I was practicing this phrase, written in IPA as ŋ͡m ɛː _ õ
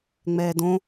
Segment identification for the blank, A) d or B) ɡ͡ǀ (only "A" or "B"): A